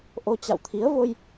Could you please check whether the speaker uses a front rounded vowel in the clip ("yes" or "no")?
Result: no